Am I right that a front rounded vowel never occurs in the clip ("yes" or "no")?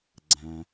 yes